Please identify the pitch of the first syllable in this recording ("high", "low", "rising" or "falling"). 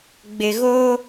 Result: low